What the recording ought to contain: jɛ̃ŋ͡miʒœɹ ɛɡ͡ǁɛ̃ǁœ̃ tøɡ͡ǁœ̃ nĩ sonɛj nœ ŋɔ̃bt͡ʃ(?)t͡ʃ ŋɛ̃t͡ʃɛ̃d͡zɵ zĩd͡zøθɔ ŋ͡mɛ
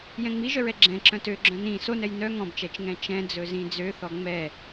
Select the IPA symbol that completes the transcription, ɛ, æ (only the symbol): ɛ